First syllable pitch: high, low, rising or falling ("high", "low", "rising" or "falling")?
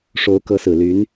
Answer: rising